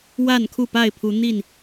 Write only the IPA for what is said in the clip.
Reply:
wa˥˨nkʰu˥˨pa˥˨ɪ̯ pʰu˨˦ n̪i˥˨n

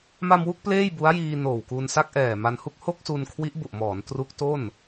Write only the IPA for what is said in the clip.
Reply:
ma˧mwu˥˩k̚ pleː˥˩jbu˦˥a̯jiː˧ noː˨˩wkuː˧nsa˥˩k̚ ʔɛː˨˩ma˧nhu˥˩k̚ ho˥˩k̚su˧n kʰwi˦˥ʔbu˨˩ʔmɔː˩˦n tru˦˥k̚to˥˩n

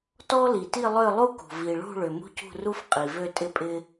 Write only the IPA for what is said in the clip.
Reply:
tɔ˦li˩ti˦˨ lˠø˦˨lˠu˦kṳ˩ vi˩ɭṳ˦˨ɭʏ˩ mṳ˦cṳ˦˨ru˦f qʼi˩vø˦˨ tʼɪ˦pʼɪ˦

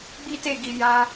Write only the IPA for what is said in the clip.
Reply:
ɡ͡bi˦te˦˨ɡi˨ ja˧

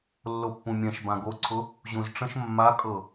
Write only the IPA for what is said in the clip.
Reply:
lːopːũmʲɛ̃ʃ bãɡoǀʰʊ | ʑũzʈ͡ʂə̃ʃ mːakʼɤ

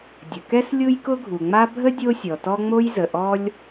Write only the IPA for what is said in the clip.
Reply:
dʲə˩kɛ˥s lʲu˥jkʊ˥ɡʱu˩ŋ͡ma˥ bʱə˥ dʲo˥sʲɔ˩ tɔ˥ ŋ͡mo˥jzə˩ ʔɔ˥lʲ

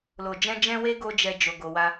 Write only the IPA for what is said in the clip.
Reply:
lo˨d͡ʒɛ̃˧d͡ʒɛ̃˧we˧ ɡo˦d͡ʒɛ˧d͡ʒo˨ ɡo˨wa˧

